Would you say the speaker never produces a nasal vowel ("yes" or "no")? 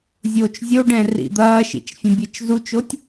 no